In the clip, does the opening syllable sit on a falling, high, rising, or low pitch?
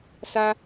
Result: high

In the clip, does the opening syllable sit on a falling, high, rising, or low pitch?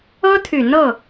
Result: high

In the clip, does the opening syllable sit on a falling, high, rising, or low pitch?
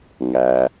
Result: low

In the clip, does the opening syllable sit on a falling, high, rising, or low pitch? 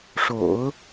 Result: low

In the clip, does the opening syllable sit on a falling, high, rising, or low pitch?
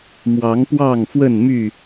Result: rising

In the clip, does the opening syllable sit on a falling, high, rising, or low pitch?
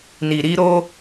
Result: low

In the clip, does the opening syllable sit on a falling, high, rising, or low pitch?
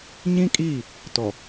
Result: high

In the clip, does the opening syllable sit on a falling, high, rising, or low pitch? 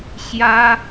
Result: high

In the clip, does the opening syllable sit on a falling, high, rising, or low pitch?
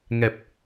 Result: low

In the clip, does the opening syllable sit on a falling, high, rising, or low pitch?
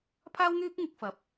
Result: high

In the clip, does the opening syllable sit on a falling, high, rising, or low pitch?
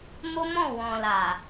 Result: high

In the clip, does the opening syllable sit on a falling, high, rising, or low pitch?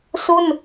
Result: falling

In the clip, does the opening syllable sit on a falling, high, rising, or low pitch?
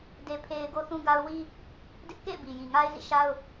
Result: high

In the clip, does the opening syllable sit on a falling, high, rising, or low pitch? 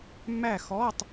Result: falling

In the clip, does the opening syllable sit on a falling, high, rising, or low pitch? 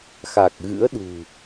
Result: low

